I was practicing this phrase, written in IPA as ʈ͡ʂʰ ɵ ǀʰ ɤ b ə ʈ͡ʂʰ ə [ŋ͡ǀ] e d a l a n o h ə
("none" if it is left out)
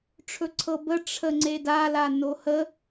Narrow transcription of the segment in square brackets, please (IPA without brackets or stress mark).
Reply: ŋ͡ǀ